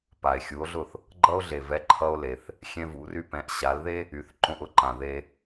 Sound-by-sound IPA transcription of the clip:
p a˩ e̯ xʲ u˩˥ o̯ ɮ ʊ˥˩ θ | ɡ͡ǃ ʌ˧ o̯ ɮ e˩ v ɛ˩˥ ǃʰ ʌ˧ o̯ l e˩ θ | xʲ ɛ̃˧ v ṵ˩˥ r y˧ p ɛ̃˩˥ ʔ ɕ a˩˥ l ð e˥ | y˩˥ θ ǃ õ˧ ʔ ʊ˩˥ ǃ ã˩ ð e˧

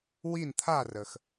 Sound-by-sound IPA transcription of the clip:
w i˥˨ n t̪ʰ a˥˨ r ə˩ x

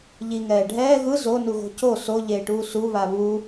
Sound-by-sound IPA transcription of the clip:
ʎ i ŋ ɛː ɖʱ ɛː ɣ ɯ z o n u ɣ o̤ c o s o ʎ eː ʈ uː s u β a β u

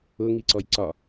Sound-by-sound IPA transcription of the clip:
ʊ ŋ i ǀ ɔ j ǀ ɒ

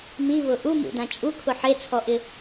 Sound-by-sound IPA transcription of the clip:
m i β ʊ ʔ u m ṵ d ã t͡ʃʼ u kʰ ʊ ħ e t͡sʰ ɔ ʔ ɪ

